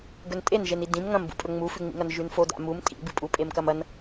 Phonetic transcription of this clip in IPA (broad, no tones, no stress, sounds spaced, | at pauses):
ɡ ɵ n tʼ e n ʒ e n i d ĩ m ŋ ɐ̃ m b ṵ pʼ ɵ ŋ͡m u f ʉ ŋ͡m ḭ ŋ ɐ n ʒ ʉ n f o d a̰ m u m tʼ ḭ b ɨ pʼ u pʼ e m k ɐ m ɐ n